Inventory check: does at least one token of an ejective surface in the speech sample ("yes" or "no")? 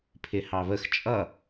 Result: yes